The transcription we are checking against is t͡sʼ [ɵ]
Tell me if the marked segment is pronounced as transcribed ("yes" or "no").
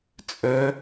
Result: yes